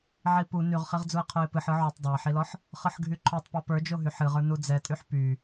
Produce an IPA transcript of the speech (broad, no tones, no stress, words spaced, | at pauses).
ʕipu nyʁχiʁd͡zuə̯ qʰoɪ̯pɨħɯ ʕytˤ dˤə˞ɪ̯ħilɔħ | χɯħɡʱyǃʰotˤ pɔpə˞d͡ʒoɦy ħɨʁə˞ nud͡zɛtʼyħ py